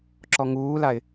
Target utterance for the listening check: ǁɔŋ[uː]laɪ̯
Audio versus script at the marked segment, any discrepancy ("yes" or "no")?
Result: no